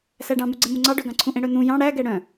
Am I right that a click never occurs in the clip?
no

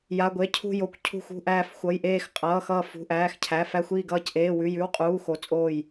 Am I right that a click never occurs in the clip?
yes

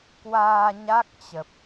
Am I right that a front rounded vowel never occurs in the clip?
yes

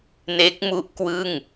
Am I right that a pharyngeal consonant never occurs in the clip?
yes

